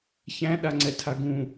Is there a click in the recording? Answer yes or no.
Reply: yes